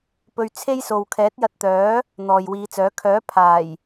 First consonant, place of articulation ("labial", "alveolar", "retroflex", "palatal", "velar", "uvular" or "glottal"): labial